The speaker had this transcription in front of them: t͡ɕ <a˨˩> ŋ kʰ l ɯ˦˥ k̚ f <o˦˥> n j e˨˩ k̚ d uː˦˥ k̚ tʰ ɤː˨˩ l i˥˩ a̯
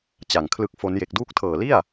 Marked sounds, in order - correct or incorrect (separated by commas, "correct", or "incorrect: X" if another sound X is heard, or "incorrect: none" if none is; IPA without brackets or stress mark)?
correct, correct